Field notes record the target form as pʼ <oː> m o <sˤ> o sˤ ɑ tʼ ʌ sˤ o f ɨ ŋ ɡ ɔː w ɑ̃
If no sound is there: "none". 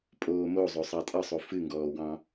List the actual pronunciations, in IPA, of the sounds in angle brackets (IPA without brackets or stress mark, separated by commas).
oː, zˤ